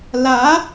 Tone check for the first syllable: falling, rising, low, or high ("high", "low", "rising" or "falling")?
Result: rising